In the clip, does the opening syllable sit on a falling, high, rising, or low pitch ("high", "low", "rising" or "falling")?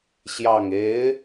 low